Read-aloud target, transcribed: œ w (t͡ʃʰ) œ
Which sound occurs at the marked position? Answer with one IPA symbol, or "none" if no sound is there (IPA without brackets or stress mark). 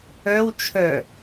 t͡ʃʰ